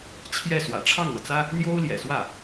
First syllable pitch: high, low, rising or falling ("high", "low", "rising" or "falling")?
falling